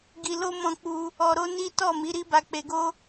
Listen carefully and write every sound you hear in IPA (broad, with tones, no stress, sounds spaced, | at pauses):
ɡ i˧ l o˦ m ɔ̃˦˨ k͡p u˧ | ɔ˧ ɾ o˦ n i˦ t ɔ˦˨ m i˨˦ ɾ i˦ b a˧ k͡p e˧ ɡ o˦